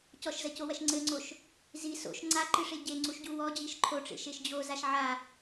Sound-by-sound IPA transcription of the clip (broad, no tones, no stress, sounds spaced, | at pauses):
c ɔ ʃ z ɐ c o w ɐ ʃ ŋ͡ǀ ɘ ŋ͡ǀ o ʃ | z i s o̰ ʃ ŋ͡ǀ a ǃ ɨ ʂ e ɟ e ŋ͡ǀ u ʃ ɟ u w ɔ d͡ʑ i ʃ ǃʰ o ʈ͡ʂ ḛ ʃ e ʃ d͡ʑ o z a ʃ ʕ a